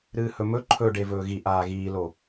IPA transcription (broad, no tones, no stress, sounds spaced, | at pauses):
ɾ ɨː h ɵ m ɵ ǃʰ ɵ ɖ e v ɵː ɣ i ʔ aː ɣ iː l o